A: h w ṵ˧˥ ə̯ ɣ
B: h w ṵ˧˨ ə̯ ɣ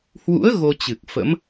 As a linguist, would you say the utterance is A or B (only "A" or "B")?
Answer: A